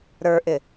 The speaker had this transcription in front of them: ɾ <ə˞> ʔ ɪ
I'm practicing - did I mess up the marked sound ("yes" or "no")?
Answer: no